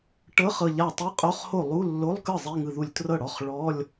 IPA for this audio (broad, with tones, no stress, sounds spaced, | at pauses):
ʈ ɤ˧˥˧ χ ɤ˧˩ ʎ a˧˩ tˤ i˧˥˧ qʼ o˧˥˧ χ h o˥˩ lˠ u˧˥˧ lː o˧˥˧ lˠ k ɯ˥˩ zˤ i˧˥˧ ŋ ɯ˧˩ ð u˧˩ lʲ t r ɤ˥˩ ɽ ɔ˧˥˧ χ ɭ ɔ˧˥˧ lʲ